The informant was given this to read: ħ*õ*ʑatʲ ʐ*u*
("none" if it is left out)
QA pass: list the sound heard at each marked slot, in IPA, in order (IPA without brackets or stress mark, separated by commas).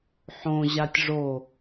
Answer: õ, o